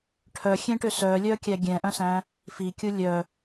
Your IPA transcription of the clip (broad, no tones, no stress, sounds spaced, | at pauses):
ʈʰ œ xʲ ẽ ʈ ø s œ lʲ œ kʲ æ ɡʲ ɛ̃ ʔ œ̃ s æ̃ | f i kʲ u lʲ œ